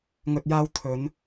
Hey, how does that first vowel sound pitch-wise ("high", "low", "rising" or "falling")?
low